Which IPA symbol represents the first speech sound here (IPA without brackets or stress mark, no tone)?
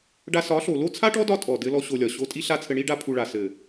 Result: ɖ